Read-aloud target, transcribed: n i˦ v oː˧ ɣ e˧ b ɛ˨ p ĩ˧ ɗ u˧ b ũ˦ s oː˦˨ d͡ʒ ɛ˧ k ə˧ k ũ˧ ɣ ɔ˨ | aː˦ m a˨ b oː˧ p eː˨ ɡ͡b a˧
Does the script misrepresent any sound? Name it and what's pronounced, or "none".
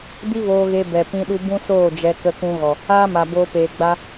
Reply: n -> d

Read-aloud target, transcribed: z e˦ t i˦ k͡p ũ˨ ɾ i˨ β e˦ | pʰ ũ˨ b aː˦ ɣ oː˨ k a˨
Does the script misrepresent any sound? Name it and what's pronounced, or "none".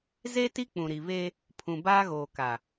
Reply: none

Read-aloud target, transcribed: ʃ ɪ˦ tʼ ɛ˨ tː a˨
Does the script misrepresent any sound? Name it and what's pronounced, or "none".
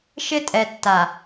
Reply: none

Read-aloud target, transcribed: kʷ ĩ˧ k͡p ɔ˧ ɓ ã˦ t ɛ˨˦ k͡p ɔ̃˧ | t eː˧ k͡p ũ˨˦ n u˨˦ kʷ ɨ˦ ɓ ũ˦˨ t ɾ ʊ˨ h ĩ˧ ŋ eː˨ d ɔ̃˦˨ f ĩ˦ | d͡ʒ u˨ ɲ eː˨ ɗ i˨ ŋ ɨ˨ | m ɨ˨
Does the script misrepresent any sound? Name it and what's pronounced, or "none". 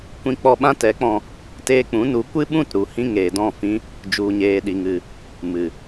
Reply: ʊ˨ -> u˨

